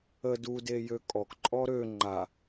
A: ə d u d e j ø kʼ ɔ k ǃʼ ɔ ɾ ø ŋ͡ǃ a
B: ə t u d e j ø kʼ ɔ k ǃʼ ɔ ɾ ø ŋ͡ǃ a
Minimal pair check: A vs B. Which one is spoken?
A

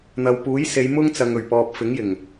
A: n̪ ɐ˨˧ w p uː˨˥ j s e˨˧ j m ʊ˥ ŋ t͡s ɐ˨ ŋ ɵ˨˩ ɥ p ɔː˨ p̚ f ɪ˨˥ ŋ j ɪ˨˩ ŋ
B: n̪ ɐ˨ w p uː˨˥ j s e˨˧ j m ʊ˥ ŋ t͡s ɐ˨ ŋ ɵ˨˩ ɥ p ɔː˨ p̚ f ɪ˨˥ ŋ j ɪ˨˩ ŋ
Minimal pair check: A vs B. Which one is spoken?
B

